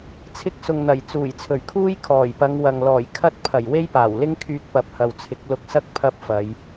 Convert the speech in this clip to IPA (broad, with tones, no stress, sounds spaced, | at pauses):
t͡sʰ ɪ˧ k̚ s ʊ˨ ŋ n̪ ɐ˨˩ j t͡s uː˨˩ j t͡sʰ ɵ˨˩ ɥ kʰ uː˥ j kʰ ɔː˨˩ j p ɐ˨˧ ŋ w ɐ˨ ŋ l ɔː˨˩ j kʰ ɐ˥ t̚ pʰ ɐ˨˩ j w e˥ j p aː˨˩ w l ɪ˥ ŋ kʰ yː˧ k̚ p ɐ˨˥ p̚ h ɐ˨ w t͡sʰ ɪ˨˥ k̚ l ʊ˧ k̚ s ɐ˥ k̚ pʰ ɐ˥ p̚ f ɐ˨˧ j